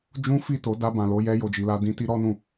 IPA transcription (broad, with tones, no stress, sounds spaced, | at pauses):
d͡ʒ ũ˦ f i˦˨ t o˨˦ d a˧ b ã˨ l o˧ j ɛ˧ j o˨ d͡ʒ i˨ l a˧ d ĩ˦ t i˦ ɾ ɔ˦ n ũ˧